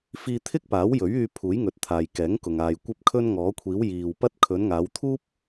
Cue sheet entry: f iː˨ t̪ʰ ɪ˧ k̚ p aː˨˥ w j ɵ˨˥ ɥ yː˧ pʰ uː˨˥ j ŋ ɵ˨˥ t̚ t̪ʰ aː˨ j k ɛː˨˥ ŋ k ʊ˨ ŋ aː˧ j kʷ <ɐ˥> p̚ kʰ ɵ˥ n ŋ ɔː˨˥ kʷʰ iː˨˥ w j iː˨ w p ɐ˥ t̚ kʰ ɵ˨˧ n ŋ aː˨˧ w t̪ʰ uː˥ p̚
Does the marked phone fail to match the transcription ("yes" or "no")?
no